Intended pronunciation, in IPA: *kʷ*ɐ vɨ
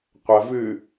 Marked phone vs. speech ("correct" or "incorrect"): incorrect